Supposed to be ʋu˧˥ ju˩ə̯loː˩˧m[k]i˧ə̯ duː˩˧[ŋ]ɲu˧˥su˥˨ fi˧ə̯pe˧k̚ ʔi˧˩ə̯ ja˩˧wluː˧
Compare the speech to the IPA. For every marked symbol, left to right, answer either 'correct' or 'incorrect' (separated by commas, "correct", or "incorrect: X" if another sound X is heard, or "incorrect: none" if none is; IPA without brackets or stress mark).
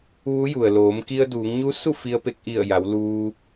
correct, correct